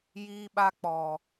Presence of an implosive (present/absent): present